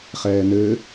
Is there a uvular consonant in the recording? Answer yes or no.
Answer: yes